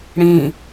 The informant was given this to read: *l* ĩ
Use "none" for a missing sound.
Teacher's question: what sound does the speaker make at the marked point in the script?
ɽ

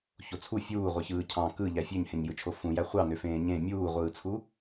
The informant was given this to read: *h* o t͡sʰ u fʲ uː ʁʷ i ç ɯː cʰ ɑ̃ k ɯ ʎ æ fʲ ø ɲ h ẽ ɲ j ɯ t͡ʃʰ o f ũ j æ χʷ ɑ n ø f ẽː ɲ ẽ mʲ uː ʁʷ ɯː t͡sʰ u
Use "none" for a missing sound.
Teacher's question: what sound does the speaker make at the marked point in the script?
ç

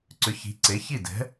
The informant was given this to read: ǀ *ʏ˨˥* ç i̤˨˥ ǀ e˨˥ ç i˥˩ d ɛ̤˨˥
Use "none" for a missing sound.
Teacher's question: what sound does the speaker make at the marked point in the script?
ʏ˨˥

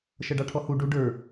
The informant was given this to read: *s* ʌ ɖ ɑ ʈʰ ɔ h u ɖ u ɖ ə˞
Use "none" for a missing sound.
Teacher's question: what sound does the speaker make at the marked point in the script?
ʃ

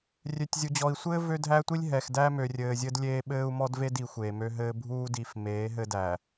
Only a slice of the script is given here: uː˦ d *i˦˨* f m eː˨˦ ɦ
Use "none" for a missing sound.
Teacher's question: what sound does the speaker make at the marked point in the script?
i˨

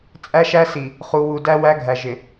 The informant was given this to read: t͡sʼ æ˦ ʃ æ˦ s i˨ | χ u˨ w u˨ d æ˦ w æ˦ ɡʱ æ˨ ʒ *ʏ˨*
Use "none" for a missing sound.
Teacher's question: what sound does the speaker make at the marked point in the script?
ɪ˨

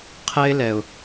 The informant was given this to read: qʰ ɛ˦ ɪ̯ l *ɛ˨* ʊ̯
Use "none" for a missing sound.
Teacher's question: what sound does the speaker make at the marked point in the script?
ɛ˨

